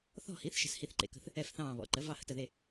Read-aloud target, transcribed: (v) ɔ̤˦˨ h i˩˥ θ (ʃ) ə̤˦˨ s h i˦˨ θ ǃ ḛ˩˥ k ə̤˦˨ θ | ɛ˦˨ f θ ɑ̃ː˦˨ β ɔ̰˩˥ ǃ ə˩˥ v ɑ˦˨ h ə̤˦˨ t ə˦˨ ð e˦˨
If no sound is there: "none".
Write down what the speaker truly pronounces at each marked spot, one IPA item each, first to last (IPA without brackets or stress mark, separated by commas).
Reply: θ, ʃ